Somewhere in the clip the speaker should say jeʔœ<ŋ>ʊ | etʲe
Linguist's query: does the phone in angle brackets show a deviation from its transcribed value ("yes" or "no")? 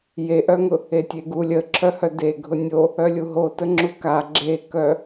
no